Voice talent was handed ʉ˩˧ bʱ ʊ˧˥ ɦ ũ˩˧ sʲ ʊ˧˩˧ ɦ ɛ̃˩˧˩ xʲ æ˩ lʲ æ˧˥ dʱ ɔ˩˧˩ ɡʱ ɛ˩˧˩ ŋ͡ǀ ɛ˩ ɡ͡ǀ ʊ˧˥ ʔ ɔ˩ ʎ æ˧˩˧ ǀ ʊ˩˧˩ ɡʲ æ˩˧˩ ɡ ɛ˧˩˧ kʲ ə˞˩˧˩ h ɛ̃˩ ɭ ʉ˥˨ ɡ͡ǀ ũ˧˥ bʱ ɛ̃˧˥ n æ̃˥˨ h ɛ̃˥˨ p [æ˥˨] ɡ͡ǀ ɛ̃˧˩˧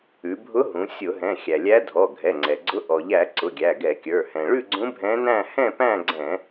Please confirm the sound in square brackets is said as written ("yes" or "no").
no